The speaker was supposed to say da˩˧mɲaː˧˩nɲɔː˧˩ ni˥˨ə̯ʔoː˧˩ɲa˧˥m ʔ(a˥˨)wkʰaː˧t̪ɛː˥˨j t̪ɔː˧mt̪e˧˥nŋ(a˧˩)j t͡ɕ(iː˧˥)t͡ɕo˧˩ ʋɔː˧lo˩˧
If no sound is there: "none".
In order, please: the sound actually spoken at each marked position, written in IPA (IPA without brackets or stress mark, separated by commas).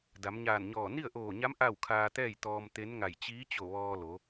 a˥˨, a˧˩, iː˧˥